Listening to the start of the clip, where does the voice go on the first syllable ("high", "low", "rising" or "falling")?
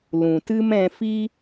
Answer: low